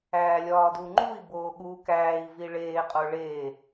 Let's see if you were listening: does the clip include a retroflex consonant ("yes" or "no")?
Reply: yes